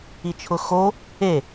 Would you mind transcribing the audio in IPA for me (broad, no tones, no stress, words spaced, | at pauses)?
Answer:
it͡ʃʰʊxo | e